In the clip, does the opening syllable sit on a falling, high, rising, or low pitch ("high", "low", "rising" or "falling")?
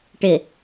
low